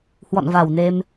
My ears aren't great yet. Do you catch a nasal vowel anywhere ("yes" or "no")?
no